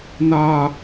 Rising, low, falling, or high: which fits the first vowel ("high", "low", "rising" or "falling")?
high